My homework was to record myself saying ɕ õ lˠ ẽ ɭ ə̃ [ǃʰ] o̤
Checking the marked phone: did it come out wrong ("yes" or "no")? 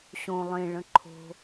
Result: no